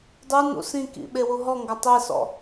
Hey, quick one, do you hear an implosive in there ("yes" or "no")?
yes